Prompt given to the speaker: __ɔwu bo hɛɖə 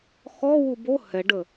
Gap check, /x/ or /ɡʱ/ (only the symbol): x